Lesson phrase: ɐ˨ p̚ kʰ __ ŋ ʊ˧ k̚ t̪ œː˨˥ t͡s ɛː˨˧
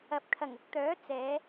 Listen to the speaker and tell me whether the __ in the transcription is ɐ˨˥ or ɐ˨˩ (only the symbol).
ɐ˨˩